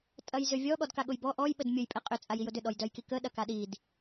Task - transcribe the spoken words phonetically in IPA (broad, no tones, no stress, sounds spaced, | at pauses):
tʼ ɐ j z ʏ vʲ ɔ ɠ ɔ d k a ɠ ʊ j b ɔ ʔ ɔ j ɓ ə d mʲ ʊ j pʼ ɛ qʼ ʏ t͡sʼ a j i j ʊ d ʏ ɗ ɔ j d œ j k i k ə ɗ ɐ k a ɗ i d